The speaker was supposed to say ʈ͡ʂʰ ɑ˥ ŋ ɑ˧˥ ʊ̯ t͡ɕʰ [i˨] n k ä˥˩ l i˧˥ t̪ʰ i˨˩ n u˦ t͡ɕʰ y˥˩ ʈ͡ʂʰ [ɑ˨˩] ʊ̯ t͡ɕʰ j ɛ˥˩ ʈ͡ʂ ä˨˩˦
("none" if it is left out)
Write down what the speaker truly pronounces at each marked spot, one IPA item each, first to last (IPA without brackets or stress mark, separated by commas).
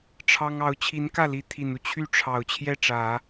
i˧˥, ɑ˨˩